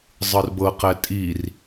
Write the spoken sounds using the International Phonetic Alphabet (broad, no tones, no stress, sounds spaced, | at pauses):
zˤ ɯ r b ɤ q ɛ tʼ i r